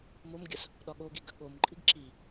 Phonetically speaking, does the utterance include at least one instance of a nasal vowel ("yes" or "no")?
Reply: no